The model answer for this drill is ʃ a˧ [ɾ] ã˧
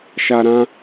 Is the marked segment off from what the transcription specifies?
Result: no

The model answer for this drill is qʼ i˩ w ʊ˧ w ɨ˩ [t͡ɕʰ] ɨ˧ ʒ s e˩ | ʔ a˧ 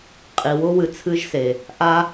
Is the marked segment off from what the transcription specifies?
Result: yes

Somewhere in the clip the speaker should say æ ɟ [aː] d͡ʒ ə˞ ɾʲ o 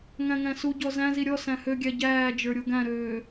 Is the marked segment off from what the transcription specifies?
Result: yes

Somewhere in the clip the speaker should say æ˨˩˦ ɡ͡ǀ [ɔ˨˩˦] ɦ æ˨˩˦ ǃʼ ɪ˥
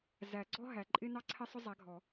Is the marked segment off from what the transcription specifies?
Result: yes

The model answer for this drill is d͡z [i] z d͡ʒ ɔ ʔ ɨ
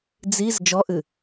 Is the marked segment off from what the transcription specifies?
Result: no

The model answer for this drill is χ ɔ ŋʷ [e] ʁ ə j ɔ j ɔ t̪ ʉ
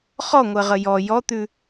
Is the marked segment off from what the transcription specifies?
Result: yes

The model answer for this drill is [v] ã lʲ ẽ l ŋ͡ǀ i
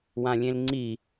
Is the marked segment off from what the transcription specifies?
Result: yes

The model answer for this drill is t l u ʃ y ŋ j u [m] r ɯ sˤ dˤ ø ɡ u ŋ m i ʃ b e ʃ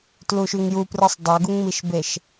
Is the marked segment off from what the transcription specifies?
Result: yes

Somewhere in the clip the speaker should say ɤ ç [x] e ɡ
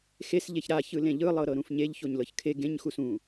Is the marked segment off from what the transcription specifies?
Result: yes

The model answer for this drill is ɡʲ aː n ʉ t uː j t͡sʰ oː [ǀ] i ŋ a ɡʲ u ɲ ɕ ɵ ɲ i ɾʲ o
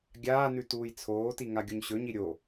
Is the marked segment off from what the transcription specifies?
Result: yes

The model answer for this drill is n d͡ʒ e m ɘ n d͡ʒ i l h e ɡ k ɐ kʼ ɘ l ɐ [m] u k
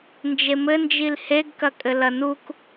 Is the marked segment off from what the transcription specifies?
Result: yes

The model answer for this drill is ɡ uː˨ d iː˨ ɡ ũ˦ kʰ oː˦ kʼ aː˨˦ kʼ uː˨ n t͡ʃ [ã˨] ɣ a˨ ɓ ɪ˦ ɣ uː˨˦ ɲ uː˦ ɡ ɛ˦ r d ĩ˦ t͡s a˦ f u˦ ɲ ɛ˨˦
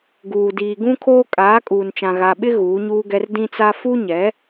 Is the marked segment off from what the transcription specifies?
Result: no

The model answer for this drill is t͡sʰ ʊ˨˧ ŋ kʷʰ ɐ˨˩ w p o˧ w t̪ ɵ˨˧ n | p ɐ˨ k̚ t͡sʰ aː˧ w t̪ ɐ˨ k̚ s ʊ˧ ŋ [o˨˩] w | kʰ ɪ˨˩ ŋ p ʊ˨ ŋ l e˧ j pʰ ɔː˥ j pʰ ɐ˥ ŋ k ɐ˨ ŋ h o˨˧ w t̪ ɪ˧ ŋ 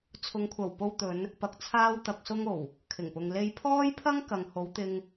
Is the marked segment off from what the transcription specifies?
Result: no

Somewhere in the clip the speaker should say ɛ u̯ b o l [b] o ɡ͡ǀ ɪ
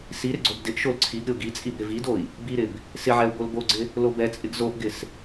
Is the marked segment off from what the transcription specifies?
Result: no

